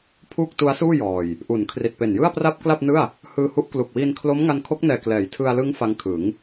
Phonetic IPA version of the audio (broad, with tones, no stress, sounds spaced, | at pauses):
pʰ uː˥˩ k̚ t u˦˥ a̯ s uː˥˩ j ɔː˨˩ j | ʔ u˩˦ n kʰ r i˨˩ t̚ p e˨˩ n j ɯ˥˩ a̯ p r a˥˩ p̚ k l a˥˩ p̚ n ɯ˥˩ a̯ | h ɯː˧ h u˦˥ ʔ k l u˨˩ k̚ w iː˧ n kʰ l o˦˥ m ŋ a˧ n kʰ o˦˥ k̚ n ɛː˨˩ k l ɛː˩˦ j tʰ ɯ˧ a̯ l ɯ˦˥ ŋ f a˦˥ ŋ kʰ ɯ˩˦ ŋ